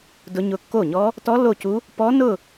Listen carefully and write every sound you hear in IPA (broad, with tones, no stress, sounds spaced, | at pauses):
d ʊ˦˥ ɲ ʊ˥˩ kː o˥˩ ɲ ɔ˦˥ | t ɔ˦˥ lː o˥˩ c u˦˥ | p ɔ˦˥ n ʊ˥˧